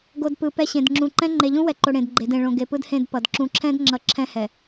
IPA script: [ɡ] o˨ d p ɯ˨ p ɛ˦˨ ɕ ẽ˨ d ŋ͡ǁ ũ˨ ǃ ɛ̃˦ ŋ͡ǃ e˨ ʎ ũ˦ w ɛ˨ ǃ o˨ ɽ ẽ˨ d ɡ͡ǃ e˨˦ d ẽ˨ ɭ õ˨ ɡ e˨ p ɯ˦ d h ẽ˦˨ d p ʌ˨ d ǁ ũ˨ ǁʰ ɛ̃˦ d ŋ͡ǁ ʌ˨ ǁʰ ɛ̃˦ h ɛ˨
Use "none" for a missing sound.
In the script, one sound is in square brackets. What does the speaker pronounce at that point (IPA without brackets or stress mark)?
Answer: ɡ